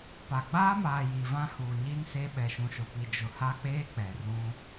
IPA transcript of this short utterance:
p a˨ ɡ͡b aː˦ m aː˨ j i˨ v ã˦ h uː˨ ɲ i˦ n s e˦ ɓ ɛ˨ ʃ ũ˨ ʃ ʊ˨ p i˨ d͡ʒ ʊ˨ h a˦ k͡p eː˦ k͡p ɛ˨ r ũ˦

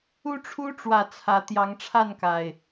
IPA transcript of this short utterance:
u˦ ʈ͡ʂʰ u˦ ʈ͡ʂ w ä˨˩ t͡sʰ ä˨˦ t̪ j ɑ˨˦ ŋ ʈ͡ʂʰ a˥˨ n k a˨˩ ɪ̯

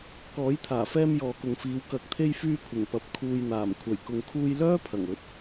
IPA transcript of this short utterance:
k ɔː˨˥ j t̪ʰ aː˨˩ f ɛː˧ m j ɔː˨ k ʊ˨ ŋ f iː˨˧ w k ɐ˨˥ k̚ t̪ʰ e˧ j f yː˧ kʷʰ ɪ˨˩ ŋ p ɐ˨ p̚ kʰ uː˨ j n̪ aː˨˩ m kʷʰ ɐ˨˩ j k ʊ˨ ŋ kʰ uː˧ j l œː˥ pʰ ɐ˨˩ ŋ ɵ˨˥ t̚

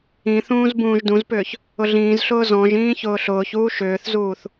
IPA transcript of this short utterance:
ĩ θ ũː z b ũː ʒ d ũ z p ʏː ç | ʊ ɮ ĩː z ɬ ʊː z ɔ̃ ʒ ĩː ç ʊː ɬ ʊː ç uː ʃ ʏː θ z uː θ

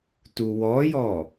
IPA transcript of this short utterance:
t u w ɔ j ɔ

